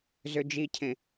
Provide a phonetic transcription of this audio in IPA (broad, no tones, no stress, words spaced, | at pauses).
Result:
zød͡ʒicʰẽ